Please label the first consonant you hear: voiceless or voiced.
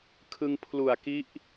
voiceless